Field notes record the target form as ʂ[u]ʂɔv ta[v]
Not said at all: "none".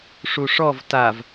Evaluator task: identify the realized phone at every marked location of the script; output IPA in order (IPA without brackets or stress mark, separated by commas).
u, v